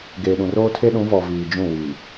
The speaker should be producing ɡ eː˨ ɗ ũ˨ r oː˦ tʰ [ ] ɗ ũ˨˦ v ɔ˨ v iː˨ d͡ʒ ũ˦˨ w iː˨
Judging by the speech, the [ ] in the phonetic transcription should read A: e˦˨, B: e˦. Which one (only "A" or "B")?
B